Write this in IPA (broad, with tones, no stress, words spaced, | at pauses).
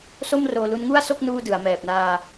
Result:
so˥˩mroː˧lu˦˥n ŋu˥˩a̯so˥˩k̚ nuː˥˩dɯ˩˦a̯mɛː˨˩p̚ naː˧